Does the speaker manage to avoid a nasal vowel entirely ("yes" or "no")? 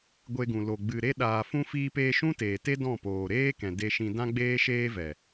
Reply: no